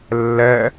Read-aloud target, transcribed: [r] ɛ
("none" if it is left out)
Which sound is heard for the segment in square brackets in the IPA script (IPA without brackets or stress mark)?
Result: lː